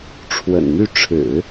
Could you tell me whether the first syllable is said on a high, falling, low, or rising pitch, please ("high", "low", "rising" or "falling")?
low